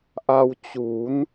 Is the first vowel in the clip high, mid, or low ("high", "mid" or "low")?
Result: low